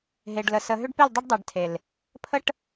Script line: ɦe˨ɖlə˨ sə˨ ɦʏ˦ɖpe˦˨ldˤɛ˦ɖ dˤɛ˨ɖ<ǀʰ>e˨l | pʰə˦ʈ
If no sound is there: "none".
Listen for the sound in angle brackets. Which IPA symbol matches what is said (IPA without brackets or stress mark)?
tʰ